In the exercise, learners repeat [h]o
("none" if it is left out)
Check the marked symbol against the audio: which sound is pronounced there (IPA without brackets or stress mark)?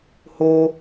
h